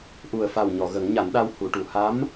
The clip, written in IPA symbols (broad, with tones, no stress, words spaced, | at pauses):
ʔu˨˩ə̯fa˨˩w ɲɔ˨˩˨ɣə˨˩˦ŋɲa˨˩˦nɗa˧w hu˨˩˨ʈu˨˩˨ha˧˥m